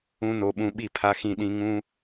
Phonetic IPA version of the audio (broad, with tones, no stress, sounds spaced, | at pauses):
ũ˦ n o˧ ɓ ũ˧ ɓ i˦˨ pʰ a˧ x ĩ˧ ɗ ĩ˧ ŋ ũ˦